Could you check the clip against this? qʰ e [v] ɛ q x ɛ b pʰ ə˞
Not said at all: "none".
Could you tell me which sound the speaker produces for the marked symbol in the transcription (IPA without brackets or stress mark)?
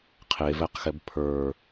v